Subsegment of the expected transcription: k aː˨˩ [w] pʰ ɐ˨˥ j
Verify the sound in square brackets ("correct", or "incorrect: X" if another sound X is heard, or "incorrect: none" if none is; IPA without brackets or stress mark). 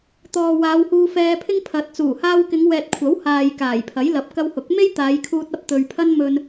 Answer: incorrect: j